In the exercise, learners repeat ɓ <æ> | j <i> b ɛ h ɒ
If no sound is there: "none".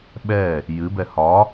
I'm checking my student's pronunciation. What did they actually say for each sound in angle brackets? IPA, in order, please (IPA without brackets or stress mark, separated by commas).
ɛ, ɨ